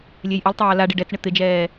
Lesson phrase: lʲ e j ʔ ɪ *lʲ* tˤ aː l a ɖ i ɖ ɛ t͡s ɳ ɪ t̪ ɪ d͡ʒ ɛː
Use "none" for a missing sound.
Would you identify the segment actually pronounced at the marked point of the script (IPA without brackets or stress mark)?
lˠ